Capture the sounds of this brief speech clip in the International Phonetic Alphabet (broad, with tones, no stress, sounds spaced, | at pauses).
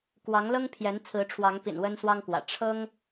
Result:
k w ɑ˨˦ ŋ l ɤ˦ ŋ pʰ j ɛ˨˦ n t͡sʰ ɹ̩˨˦ ʈ͡ʂʰ w ɑ˨˦ ŋ p ḭ˨˩ n w ə˦ n s w ɑ˦ ŋ k w ä̰˨˩ ʈ͡ʂʰ ɤ˦ ŋ